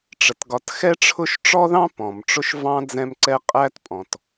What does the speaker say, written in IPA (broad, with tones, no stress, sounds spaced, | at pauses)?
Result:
ʈ͡ʂ ə˩ t ɡ ɒ˨ t x ɛ˥ ʈ͡ʂʰ ʊ˦ ʃ ʈ͡ʂ ɔ˥ ð ɑ̃˥ p ɔ̃˩ m ʈ͡ʂ ʊ˦ ʃ v ɑ̃˥ d͡z ɛ̃˦ m ǀ ɛ˦ qʼ æ˥ t pʼ ɔ̃˩ t